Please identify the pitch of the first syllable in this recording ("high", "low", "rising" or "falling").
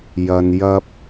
low